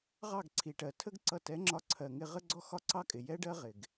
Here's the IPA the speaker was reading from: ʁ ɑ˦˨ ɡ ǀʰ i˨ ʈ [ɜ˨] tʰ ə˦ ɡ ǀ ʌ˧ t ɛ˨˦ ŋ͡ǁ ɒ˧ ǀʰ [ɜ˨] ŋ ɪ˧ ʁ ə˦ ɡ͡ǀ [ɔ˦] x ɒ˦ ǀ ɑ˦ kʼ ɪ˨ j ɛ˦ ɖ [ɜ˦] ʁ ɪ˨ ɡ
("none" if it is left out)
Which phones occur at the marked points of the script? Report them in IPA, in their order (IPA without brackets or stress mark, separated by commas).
ɜ˨, ɜ˨, ɔ˦, ɜ˦